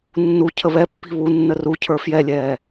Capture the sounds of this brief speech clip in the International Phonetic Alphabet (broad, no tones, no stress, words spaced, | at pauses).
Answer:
nːu cʰəβɛpːi̤ βunːə rucʰə˞ fjɛlʲɛː